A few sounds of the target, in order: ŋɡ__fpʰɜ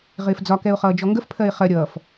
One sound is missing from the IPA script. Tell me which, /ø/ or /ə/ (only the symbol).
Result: ə